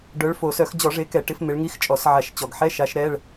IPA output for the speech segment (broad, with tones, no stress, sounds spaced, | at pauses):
ɖ œ˨˦ ɭ f o˨˩ s œ˧˩˧ x d͡ʑ ɔ˧˩˧ ʐ e˨˦ k ɛ˧˩˧ ʈ ɪ˨˦ f m ɪ˨˦ ɭ ŋ i˧˥˧ x t͡ʃʼ ɔ˧˩˧ s ʕ a˧˩˧ ʃ t͡ɕ ɔ˨˩ ɡ ħ ɛ˧˥˧ ʃ a˨˦ ʃ ɾ ɛ˧˥˧ ɭ